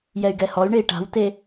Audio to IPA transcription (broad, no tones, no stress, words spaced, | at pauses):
jɛy̯ɡɛhɔy̯ɳei̯ ʈa̤wte